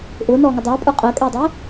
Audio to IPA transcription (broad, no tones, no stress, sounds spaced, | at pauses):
ʔ ʊː n ɔː ŋ ʌ dˤ ʌː pʼ ə˞ qʼ əː kʼ ɛː dˤ ɪː